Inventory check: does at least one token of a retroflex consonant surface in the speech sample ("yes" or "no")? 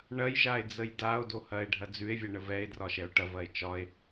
yes